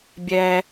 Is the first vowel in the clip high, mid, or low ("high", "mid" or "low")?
mid